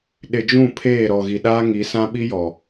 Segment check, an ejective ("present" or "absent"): absent